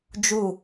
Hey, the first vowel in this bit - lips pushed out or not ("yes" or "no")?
yes